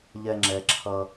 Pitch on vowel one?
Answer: low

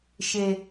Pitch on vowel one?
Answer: low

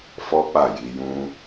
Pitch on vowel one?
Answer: high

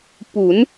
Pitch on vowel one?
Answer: rising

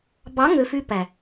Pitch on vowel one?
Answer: rising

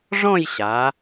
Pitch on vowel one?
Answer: falling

